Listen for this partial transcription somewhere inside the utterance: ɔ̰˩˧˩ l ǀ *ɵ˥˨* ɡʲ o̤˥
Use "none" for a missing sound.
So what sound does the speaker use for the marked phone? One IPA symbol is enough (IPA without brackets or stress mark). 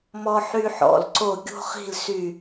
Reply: o˥˨